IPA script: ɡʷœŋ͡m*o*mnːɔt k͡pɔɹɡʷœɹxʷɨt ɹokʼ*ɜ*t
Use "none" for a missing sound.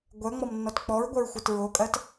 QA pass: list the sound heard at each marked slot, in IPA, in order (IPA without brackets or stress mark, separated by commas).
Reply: ɔ, ɜ